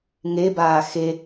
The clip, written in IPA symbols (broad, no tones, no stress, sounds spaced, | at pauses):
ŋ e b aː x e